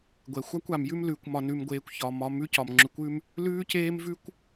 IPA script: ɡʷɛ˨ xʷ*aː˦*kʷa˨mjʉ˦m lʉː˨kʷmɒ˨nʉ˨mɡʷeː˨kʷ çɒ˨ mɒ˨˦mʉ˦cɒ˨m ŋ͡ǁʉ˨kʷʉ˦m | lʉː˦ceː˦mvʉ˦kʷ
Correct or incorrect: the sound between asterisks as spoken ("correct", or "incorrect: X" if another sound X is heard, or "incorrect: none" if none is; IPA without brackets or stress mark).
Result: incorrect: a˦